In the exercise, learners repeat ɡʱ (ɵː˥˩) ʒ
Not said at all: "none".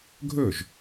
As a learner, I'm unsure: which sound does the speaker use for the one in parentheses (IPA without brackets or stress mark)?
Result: ɵː˥˩